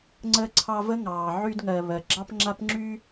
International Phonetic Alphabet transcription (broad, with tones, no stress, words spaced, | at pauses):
ŋ͡ǀə˦ǀʰɑ˦və˥ŋɑː˩ ʕy˦dŋɜ˨ βɜ˩ɡ͡ǁɑ˥pŋ͡ǁa˥p ŋ͡ǁy˦